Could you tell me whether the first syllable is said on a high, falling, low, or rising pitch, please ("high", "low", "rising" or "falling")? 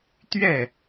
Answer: falling